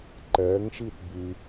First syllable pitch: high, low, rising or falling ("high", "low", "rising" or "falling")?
rising